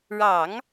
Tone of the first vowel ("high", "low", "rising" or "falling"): low